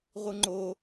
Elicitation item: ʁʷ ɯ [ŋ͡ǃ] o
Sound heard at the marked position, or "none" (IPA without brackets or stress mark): ŋ͡ǃ